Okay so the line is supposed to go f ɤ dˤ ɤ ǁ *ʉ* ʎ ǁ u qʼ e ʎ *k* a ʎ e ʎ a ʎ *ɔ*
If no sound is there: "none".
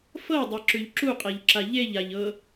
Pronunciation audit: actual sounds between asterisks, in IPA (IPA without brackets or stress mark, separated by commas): ʉ, ǁ, ɤ